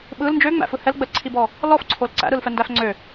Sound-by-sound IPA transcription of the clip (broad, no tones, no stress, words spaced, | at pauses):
ɓɯl nd͡ʒøŋ͡mæ̰fɯ hɛlɡ͡bəlǀʰibɔ | lɔfǀʰol ǀæ̰ɾɯlfɛndæf ŋ͡ǀø